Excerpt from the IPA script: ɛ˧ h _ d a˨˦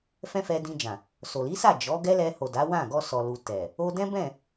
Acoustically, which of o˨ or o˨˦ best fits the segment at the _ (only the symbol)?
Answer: o˨